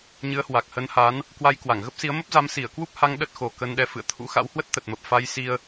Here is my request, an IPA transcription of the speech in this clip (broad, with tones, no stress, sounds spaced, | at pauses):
ɲ ɨ˨˦ ə̯ h w a˨˩ k̚ h ə˨˦ n h a˨˦ n | k w a˧ j k w a˧˩ ŋ ɣ ə˦˥ p̚ s i˨˦ ə̯ m ə˦˥ p̚ z a˨˦ m s i˧˩ ə̯ k w u˦˥ p̚ h a˧ ŋ ɗ ə˦˥ t̚ x o˨˩ k ə˧ n ɗ ɛ˧ f ɨ̰˧˨ ə̯ t̪ʰ ṵ˧˥ x a̰˧˥ w h w ə˦˥ t̚ t̪ ə˨˩ t̚ m ə˨˩ p̚ f a˧ j s i˧ ə̯